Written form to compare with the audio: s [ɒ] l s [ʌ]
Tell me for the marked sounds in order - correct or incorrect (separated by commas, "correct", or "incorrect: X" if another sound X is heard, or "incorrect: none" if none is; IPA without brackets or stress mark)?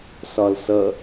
correct, correct